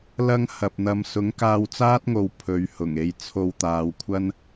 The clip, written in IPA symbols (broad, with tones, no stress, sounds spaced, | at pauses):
l ɐ˧ ŋ h ɐ˨ p̚ n̪ ɐ˧ m s ʊ˨˥ ŋ k aː˧ w t͡s aː˥ t̚ ŋ o˨ w pʰ ɵ˨˧ ɥ h ʊ˨˩ ŋ e˧ j t͡sʰ o˧ w t̪ aː˨˧ w kʷʰ ɐ˥ n